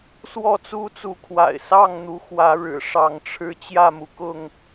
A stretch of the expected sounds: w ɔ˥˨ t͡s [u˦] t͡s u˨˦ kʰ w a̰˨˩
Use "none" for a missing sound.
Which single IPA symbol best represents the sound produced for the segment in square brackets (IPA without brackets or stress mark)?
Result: u˦